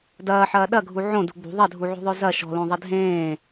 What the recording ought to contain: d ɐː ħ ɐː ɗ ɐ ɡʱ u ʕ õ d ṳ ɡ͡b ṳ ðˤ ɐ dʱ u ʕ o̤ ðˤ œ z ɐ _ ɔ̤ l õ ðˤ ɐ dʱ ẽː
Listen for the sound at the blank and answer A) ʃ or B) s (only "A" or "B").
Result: A